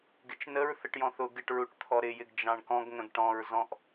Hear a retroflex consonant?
yes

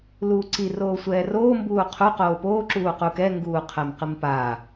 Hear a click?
yes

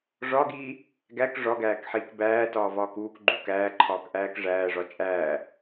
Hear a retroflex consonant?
yes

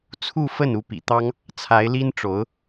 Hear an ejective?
no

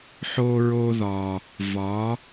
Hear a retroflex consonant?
no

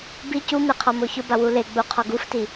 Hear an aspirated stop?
yes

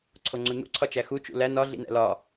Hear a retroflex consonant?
no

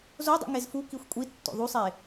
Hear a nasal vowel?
no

